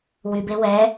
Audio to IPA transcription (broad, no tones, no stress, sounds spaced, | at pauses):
w y b e w ɛ